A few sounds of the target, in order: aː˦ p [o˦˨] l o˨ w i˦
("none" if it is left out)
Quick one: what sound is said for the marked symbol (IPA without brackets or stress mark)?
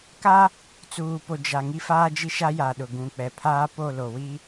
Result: o˦˨